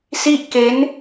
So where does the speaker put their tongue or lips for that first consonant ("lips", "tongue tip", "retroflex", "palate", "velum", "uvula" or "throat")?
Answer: tongue tip